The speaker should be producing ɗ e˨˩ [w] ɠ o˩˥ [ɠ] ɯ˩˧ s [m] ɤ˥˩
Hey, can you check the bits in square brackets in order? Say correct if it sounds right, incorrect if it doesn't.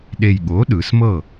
incorrect: j, incorrect: ɗ, correct

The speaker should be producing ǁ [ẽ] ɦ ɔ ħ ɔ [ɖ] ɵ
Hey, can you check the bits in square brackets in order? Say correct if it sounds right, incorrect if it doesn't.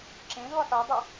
correct, incorrect: dˤ

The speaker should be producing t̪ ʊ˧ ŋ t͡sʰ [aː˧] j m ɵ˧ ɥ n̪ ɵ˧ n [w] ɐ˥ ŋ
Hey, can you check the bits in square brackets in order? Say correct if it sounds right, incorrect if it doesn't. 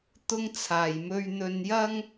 incorrect: aː˨, incorrect: j

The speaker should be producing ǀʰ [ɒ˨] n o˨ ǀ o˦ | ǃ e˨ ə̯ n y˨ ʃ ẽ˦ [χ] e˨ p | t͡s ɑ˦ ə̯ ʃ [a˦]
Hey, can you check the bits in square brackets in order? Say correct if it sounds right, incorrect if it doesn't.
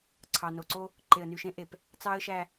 incorrect: ɑ˨, incorrect: ʔ, incorrect: æ˦

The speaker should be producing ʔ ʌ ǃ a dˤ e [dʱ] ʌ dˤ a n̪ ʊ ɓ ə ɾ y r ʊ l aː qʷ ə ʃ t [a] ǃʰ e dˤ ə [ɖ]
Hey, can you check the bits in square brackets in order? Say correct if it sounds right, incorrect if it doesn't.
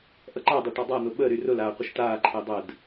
incorrect: ʈ, incorrect: aː, incorrect: d

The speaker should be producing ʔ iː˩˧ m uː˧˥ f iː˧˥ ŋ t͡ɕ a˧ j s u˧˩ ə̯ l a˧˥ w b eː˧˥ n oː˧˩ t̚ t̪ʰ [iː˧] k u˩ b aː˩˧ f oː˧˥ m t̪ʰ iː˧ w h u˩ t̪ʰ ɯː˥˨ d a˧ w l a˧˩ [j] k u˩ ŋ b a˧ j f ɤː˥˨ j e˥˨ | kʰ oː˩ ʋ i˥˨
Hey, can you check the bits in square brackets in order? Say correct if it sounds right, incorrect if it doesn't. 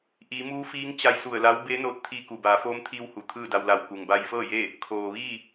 correct, incorrect: w

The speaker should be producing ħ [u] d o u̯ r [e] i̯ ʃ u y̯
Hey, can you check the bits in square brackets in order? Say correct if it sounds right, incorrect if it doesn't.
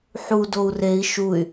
correct, correct

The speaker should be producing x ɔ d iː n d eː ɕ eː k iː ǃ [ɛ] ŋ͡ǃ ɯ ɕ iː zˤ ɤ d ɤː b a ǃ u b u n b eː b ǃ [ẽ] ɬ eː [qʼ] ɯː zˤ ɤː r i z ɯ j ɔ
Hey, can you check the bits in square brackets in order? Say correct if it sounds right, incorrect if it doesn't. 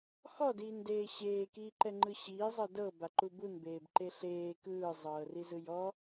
correct, incorrect: e, incorrect: k

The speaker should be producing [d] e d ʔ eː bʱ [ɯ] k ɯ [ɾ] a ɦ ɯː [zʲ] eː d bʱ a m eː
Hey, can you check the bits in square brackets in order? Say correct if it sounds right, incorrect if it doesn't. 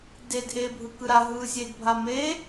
correct, correct, correct, correct

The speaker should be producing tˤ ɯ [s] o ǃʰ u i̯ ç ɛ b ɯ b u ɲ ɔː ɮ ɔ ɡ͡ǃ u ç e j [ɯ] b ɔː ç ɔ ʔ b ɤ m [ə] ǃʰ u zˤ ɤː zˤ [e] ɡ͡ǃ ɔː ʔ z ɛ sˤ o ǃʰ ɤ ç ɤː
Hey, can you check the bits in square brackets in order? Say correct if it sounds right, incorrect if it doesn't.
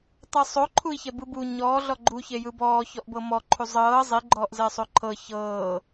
incorrect: sˤ, correct, incorrect: ɔ, incorrect: i

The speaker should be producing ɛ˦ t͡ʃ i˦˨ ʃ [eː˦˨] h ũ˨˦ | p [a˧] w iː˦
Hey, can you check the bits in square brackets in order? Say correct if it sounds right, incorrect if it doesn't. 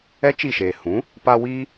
incorrect: eː˨, correct

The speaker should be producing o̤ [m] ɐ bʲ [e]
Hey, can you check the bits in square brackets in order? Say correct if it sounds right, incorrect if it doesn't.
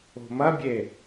correct, correct

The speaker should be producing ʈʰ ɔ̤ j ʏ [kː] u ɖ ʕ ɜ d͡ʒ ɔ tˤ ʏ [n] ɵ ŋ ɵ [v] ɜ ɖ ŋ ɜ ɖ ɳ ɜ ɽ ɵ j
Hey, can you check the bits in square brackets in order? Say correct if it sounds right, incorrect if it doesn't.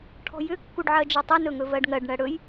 correct, correct, correct

